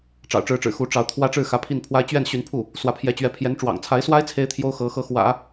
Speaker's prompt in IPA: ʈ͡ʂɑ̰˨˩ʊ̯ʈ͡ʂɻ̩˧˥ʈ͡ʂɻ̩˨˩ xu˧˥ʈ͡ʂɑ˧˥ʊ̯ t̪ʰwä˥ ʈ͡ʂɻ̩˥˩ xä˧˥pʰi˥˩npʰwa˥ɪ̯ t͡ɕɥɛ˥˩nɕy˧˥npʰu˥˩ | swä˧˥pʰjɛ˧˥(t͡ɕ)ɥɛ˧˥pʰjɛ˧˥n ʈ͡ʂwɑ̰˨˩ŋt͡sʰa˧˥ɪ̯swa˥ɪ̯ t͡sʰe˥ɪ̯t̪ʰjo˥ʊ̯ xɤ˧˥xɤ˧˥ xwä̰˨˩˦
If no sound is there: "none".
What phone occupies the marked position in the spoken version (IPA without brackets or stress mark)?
t͡ɕ